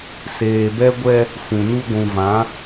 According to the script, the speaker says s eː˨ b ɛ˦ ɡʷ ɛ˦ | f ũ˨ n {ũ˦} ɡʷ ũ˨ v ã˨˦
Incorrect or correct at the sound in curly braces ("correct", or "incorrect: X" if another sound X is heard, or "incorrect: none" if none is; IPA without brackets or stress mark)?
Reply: incorrect: u˦